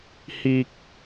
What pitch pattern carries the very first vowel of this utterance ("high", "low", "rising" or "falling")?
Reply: low